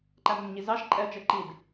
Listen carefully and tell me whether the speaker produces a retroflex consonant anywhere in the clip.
no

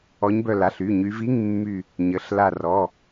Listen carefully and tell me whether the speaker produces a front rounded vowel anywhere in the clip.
yes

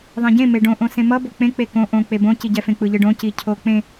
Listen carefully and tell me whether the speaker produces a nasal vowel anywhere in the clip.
yes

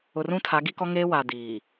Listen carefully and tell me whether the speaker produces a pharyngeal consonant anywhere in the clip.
no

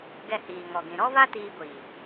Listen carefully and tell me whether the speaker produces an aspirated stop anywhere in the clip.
no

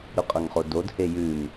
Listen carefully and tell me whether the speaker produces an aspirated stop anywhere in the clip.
no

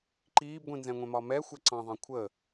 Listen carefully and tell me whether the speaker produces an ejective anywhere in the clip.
no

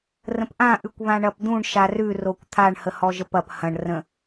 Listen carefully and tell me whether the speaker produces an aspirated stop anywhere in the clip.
yes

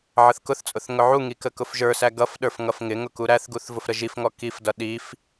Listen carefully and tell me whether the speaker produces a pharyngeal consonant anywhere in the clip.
yes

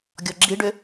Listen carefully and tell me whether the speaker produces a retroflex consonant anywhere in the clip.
yes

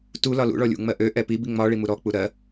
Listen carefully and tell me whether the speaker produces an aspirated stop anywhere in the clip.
no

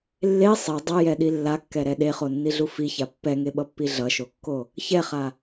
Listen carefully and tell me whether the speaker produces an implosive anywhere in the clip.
yes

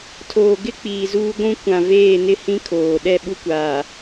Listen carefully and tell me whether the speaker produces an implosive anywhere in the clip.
yes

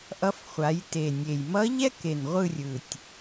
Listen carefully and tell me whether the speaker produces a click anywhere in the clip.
no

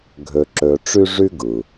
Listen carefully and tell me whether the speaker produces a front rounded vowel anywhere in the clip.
yes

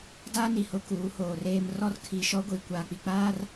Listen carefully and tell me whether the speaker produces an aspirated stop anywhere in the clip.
yes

